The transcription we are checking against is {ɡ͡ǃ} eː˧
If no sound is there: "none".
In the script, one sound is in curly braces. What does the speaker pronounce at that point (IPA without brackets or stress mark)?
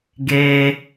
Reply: ɡ